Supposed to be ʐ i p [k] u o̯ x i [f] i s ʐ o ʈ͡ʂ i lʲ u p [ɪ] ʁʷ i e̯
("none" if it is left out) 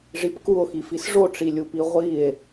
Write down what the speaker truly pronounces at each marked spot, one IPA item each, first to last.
k, f, i

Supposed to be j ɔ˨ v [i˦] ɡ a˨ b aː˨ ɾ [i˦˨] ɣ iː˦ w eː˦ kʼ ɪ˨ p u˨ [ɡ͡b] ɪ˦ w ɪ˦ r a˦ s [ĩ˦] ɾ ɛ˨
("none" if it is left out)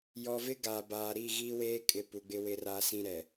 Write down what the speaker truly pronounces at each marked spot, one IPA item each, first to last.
ɪ˦, i˦˨, ɡ͡b, ĩ˦

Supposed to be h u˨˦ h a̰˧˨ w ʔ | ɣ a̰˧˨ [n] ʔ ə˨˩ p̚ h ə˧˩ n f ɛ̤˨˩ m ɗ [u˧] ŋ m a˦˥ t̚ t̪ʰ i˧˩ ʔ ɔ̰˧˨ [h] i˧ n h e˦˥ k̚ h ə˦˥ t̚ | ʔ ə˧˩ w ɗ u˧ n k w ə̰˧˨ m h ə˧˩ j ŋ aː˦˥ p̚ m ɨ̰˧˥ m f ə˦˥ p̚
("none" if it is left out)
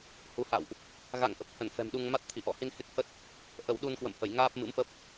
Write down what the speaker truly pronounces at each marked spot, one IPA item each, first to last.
ŋ, u˧, h

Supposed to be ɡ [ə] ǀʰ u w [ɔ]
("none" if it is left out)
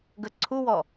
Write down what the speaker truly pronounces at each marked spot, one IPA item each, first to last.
ə, ɔ

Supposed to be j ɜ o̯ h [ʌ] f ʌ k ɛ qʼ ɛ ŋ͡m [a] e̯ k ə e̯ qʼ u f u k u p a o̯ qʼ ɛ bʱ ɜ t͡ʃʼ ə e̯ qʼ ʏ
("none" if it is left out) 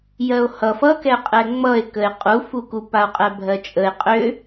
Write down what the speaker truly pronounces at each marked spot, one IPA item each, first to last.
ʌ, ʌ

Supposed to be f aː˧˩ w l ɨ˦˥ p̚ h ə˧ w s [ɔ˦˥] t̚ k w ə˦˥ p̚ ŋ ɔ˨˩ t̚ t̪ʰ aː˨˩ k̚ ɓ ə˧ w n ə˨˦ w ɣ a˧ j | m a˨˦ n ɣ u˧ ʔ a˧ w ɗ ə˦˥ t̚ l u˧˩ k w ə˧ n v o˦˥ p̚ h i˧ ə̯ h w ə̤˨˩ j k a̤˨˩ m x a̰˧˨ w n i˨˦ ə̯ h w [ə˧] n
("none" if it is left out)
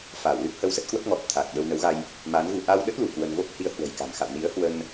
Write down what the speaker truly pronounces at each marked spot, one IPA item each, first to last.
ə˦˥, ə˧

